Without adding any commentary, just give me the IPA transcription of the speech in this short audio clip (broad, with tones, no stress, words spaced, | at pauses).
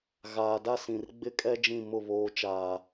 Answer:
ɣaː˨da˦sĩ˨r ɡ͡bɪ˦kʼɛ˦ d͡ʒĩ˦˨mʊ˦˨ βoː˨t͡ʃaː˨